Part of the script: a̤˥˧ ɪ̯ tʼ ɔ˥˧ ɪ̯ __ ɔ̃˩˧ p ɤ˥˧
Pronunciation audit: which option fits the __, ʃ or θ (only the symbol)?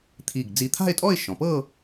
ʃ